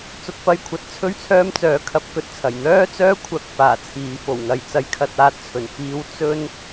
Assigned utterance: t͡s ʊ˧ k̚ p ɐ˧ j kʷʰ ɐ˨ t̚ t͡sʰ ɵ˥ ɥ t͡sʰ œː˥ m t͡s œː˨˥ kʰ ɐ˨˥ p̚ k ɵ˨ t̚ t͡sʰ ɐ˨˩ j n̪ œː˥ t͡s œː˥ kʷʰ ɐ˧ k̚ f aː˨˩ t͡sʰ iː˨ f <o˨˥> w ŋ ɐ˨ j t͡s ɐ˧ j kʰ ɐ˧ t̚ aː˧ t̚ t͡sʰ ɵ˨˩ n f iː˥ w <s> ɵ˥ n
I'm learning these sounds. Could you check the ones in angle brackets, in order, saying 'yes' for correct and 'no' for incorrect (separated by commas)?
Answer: no, no